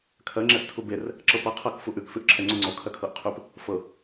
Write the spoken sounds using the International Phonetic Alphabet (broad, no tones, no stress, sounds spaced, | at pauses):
kʰ ɜ ŋ͡ǁ ɛ s tʰ u b e r | ǁ ɤ p ɤ qʰ ɤ k f u ʔ ʉ k f ʉ ʔ ǁʰ ɛ ŋ͡ǀ u ŋ͡ǀ ɔ kʰ ɜ kʰ ɤ ʔ qʰ ʉ p | f ɤ